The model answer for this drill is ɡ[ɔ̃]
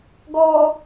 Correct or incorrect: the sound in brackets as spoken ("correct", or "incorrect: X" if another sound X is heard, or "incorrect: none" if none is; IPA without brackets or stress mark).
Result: incorrect: ɔ